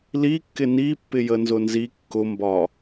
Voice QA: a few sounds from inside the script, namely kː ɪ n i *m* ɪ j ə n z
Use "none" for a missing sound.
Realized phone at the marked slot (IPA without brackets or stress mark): pː